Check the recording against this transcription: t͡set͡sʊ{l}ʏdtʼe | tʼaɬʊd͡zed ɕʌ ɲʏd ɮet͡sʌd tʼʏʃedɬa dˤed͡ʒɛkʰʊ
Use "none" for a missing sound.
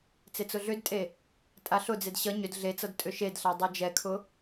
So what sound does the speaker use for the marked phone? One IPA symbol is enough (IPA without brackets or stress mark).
ɮ